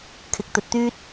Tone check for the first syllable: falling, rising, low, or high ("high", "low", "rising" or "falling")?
rising